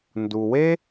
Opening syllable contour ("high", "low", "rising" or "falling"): low